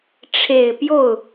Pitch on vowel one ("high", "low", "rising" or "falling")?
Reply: low